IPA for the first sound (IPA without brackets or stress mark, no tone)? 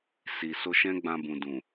s